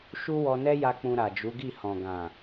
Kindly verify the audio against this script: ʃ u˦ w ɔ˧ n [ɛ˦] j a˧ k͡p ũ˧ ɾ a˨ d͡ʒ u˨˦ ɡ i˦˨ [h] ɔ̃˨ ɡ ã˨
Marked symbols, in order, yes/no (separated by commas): yes, yes